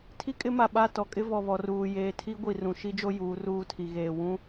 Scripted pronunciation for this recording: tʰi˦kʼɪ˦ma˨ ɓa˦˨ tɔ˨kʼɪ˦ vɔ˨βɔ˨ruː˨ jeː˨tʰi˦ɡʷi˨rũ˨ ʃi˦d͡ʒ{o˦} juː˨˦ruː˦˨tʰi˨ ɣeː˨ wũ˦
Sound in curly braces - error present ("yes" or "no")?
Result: no